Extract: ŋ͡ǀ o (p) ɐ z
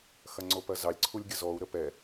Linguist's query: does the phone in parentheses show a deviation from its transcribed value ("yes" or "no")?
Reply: no